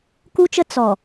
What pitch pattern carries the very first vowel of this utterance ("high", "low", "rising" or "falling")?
high